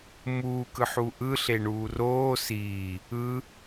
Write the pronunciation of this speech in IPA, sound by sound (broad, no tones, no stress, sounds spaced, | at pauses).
m uː k ɯ ħ u ʔ ɯ ɬ e ɳ uː r oː s iː | ɯ